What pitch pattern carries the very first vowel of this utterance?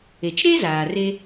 low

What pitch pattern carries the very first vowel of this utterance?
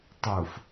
low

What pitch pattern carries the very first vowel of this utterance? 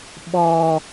high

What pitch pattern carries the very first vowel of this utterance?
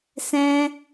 high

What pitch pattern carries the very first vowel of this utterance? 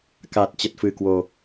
low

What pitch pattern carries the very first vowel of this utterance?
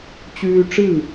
high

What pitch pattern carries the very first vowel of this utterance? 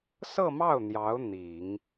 falling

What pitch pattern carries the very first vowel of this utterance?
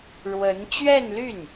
rising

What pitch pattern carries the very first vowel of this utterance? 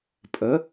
rising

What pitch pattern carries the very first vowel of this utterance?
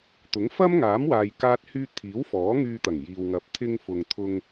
rising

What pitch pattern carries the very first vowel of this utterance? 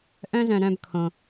high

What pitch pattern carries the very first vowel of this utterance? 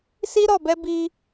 high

